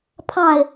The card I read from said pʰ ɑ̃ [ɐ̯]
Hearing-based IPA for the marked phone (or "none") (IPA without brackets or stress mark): e̯